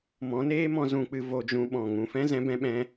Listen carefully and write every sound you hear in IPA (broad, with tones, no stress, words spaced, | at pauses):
mɔ̃˨˦neː˦mɔ̃˧ zũ˧k͡pɨ˧ vo˧d͡ʒũ˧ ɓɔ̃˨ ŋũ˨fɛ̃˦ zɛ̃˧bɛ̃˧ɓɛ̃˧